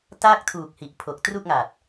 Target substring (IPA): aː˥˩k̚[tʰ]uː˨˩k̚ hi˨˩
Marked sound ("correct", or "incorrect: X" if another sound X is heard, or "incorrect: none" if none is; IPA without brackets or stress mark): correct